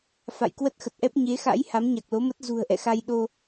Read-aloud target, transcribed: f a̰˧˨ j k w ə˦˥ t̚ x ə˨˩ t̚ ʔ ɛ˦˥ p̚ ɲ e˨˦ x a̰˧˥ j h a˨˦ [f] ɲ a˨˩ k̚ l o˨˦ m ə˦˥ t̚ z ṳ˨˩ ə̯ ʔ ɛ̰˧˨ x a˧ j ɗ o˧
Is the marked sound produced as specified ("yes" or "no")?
no